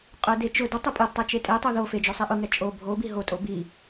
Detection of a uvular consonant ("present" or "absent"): present